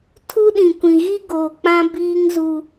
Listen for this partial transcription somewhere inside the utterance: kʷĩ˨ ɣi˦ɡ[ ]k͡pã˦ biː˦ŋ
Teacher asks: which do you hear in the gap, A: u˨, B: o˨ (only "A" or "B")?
B